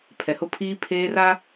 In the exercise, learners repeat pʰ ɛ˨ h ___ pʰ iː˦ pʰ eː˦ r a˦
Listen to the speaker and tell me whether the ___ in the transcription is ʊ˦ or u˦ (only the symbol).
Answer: ʊ˦